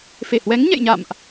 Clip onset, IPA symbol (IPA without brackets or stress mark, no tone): f